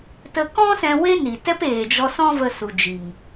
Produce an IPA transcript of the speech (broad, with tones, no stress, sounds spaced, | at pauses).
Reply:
t ə˧ k ɔ̃˦ s ɛ̃˧ w e˦ n i˨ t ɛ˦ p eː˨ d͡ʒ ɔ˧ s ɔ̃˦ v ə˧ s u˨ d͡ʒ i˨ ŋ